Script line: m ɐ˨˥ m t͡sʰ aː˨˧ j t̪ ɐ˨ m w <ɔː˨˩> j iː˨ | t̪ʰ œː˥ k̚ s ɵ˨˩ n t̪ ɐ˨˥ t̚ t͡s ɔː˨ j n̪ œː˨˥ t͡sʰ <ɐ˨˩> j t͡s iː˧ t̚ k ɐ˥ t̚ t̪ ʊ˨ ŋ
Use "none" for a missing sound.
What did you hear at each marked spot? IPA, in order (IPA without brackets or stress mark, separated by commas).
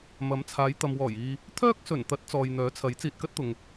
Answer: ɔː˨˩, ɐ˨˥